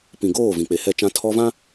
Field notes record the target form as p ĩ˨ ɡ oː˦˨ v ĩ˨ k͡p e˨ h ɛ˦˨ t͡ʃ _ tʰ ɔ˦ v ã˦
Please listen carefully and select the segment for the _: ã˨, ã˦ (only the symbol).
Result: ã˦